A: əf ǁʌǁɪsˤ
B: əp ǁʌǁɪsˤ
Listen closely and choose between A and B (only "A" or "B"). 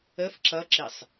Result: A